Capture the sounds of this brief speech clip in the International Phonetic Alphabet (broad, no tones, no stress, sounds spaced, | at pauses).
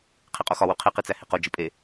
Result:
qʰ i qʼ o x ɒ w u qʰ i q i t͡s æ h i q o d͡ʒ i pʼ e